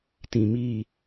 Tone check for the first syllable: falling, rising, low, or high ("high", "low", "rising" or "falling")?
low